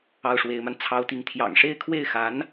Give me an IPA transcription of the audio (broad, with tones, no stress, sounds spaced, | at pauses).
ɑ˥˩ ʊ̯ ʂ w e˧˥ ɪ̯ m a˧ n t͡sʰ ɑ˥ ʊ̯ t̪ i˥˩ ŋ t̪ʰ j ɑ̰˨˩ ŋ ʂ e˥˧ ɪ̯ kʰ w e˥˩ ɪ̯ x a˧˥ n